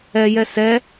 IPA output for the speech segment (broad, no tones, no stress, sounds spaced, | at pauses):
ɛ j ɛ s ɛ